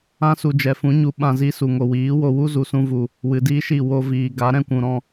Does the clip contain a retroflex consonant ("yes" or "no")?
no